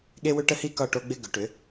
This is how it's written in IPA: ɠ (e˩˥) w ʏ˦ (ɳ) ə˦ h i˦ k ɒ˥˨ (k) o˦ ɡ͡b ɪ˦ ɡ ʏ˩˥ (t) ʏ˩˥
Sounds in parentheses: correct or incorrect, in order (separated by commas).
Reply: incorrect, incorrect, incorrect, incorrect